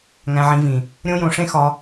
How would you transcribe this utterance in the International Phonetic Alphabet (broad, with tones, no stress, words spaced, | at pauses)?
ŋæ̃˧ʕĩ˧vĩ˨ | ɾʲõ˦jõ˧ʂẽ˦ xɒ˧